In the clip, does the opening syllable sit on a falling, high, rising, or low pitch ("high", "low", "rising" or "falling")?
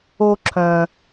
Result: high